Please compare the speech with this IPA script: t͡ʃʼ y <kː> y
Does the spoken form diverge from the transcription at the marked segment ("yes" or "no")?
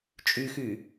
yes